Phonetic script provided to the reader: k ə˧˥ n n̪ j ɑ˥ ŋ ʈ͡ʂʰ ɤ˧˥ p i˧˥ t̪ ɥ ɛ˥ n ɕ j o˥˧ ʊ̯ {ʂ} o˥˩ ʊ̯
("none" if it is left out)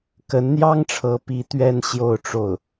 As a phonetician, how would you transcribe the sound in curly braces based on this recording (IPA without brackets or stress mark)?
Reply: ʈ͡ʂ